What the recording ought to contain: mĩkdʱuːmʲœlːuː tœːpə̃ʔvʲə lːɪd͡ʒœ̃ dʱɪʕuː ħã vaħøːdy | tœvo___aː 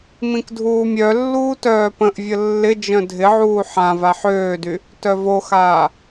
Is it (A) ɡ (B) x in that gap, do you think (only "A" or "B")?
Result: B